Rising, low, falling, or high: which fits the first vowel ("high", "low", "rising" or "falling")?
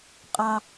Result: high